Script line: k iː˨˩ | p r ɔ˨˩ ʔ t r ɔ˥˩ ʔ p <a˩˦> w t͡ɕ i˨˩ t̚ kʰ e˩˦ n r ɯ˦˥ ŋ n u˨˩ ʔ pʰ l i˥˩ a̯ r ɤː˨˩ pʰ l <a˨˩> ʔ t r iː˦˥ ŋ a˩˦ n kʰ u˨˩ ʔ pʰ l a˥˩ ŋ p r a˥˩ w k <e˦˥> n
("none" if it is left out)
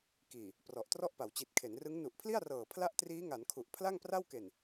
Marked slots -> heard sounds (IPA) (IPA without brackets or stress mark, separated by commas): a˩˦, a˥˩, e˨˩